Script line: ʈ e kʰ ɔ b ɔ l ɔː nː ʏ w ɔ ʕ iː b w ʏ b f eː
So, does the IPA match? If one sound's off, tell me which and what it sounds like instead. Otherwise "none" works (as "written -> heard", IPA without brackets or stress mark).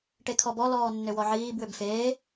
none